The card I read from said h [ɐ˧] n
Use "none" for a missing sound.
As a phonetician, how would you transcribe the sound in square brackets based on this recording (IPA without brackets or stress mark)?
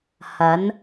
ɐ˨˥